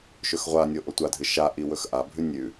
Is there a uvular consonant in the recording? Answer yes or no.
yes